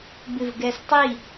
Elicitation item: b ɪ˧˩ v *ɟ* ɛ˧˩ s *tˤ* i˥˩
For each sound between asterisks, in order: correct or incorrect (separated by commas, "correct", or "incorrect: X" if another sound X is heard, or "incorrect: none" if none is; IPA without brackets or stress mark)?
incorrect: ɡ, correct